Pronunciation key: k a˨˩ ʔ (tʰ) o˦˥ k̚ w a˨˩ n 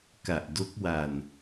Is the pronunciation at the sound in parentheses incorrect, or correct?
incorrect: d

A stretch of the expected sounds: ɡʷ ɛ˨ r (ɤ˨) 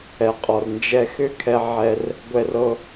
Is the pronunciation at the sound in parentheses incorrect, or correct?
correct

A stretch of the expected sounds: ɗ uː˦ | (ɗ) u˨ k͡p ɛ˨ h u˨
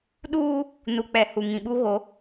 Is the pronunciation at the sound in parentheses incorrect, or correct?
incorrect: n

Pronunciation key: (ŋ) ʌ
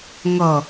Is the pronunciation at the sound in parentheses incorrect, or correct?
correct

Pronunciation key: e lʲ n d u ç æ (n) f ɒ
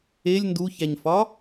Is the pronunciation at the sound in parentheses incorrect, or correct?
incorrect: ɲ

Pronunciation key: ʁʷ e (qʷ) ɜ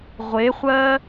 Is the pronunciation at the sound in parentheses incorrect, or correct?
incorrect: χʷ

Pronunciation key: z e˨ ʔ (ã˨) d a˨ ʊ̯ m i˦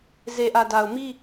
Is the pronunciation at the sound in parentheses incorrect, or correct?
incorrect: ä˨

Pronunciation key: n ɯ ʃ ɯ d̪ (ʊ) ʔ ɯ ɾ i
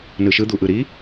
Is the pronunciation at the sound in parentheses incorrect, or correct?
incorrect: u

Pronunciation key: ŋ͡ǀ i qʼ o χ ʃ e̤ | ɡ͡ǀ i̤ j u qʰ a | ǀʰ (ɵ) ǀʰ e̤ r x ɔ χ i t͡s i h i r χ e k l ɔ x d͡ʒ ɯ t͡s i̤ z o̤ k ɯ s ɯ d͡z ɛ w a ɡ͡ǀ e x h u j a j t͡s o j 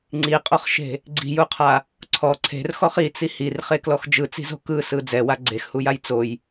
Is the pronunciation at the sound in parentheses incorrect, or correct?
incorrect: ɔ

